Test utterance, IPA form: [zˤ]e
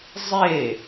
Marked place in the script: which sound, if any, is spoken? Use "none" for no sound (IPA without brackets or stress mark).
zˤ